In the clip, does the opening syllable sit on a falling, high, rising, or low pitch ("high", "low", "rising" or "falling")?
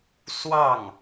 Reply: falling